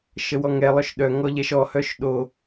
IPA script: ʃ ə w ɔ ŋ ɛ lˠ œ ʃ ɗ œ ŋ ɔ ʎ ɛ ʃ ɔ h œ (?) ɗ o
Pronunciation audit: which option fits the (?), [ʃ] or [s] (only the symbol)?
ʃ